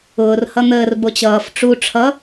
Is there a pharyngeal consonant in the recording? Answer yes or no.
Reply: no